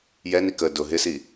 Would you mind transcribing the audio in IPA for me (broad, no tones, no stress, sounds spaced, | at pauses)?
j ɛ n i k ə d ʊ ɦ ɪ s i